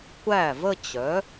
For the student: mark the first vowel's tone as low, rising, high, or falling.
falling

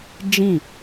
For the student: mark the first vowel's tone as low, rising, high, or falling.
falling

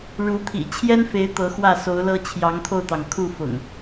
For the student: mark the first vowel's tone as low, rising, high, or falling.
rising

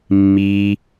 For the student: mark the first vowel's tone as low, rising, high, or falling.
low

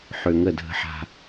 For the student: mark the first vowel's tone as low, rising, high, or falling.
low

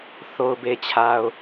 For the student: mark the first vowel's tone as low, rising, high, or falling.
low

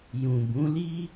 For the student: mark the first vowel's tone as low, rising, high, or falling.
low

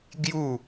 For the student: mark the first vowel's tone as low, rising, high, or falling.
falling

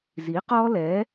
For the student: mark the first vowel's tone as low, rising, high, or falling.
rising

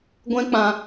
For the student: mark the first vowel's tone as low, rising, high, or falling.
high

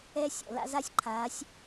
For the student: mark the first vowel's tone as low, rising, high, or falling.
high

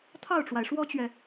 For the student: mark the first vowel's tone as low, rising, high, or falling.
falling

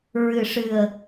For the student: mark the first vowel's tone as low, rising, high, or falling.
low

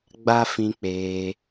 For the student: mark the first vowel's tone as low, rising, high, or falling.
high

